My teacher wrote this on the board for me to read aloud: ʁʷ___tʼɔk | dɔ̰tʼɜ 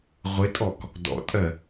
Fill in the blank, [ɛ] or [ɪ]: ɪ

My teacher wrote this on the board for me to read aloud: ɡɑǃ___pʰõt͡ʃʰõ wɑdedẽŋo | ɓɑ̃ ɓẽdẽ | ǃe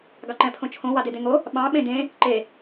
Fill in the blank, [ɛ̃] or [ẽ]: ɛ̃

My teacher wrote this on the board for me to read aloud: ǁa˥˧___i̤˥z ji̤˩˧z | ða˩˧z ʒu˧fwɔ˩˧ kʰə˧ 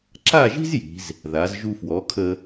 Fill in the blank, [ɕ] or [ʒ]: ʒ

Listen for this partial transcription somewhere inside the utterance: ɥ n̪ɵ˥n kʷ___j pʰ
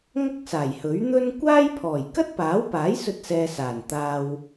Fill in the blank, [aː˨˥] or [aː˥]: aː˥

